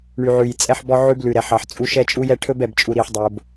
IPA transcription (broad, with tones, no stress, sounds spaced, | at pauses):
ɳ y˨ ʕ ʉ˨ j t͡sʼ ɛ˦ ħ b ɔ˦ ʕ ʉ˦ b l ʉ˨ ɾ ɛ˨ ħ ɑ˨ ħ t͡sʼ u˦ ʃ ɛ˦ t͡ʃʼ u˦ j ɛ˦ ʈʰ ɵ˦ b ɛ˨ b t͡ʃʼ u˨ ɾ i˨ ħ dˤ o˨ b